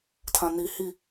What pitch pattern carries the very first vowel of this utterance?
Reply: low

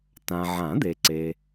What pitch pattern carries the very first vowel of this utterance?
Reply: low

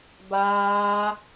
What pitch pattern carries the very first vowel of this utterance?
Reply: high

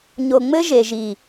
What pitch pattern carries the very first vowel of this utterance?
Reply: low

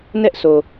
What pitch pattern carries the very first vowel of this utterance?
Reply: high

